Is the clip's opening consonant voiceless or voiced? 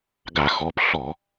voiced